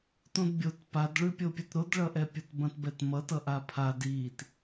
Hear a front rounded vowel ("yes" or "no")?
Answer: no